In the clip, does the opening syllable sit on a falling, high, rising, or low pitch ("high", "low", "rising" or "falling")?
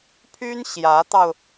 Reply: high